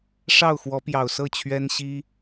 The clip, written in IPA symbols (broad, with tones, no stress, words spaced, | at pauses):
ʂɑ˥˨ʊ̯xwɔ˨˦pjɑ˨˩ʊ̯sɤ˥˨ t͡ɕʰɥɛ˦nɕi˦